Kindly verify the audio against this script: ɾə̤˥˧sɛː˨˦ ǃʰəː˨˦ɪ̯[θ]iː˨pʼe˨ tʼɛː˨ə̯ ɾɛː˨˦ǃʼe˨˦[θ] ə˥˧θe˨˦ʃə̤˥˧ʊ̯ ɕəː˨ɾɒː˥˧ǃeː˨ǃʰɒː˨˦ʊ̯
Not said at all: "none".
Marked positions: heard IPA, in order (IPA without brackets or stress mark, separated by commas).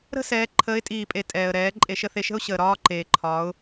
tʼ, ʃ